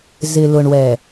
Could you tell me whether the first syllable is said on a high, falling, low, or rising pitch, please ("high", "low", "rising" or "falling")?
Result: low